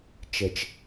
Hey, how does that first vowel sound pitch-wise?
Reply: low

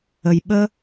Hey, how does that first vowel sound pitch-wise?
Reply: low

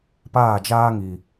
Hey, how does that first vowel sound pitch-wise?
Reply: falling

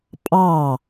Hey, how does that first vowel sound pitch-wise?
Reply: falling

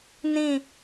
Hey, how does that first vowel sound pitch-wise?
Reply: falling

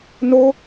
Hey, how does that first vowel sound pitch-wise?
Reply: high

